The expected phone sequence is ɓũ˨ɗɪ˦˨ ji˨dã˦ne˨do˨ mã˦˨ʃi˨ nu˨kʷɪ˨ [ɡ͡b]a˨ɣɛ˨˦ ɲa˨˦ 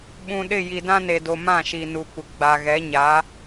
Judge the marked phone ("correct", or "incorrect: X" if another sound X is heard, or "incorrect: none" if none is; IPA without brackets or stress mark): correct